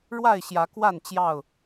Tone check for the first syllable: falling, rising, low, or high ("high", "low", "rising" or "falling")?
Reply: falling